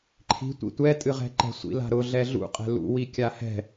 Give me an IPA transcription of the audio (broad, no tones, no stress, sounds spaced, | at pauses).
ǃʰ i̤ tʷ ḭ tʷ ɛ tʼ ɨ ʁ ɛ̤ ǃ ɛ̤ sʷ ḭ l a̤ ɾ ʊ ɮ ɛ ɮ ṵ qʼ ɛ̤ l ṵ w i kʲ a h ɛ̤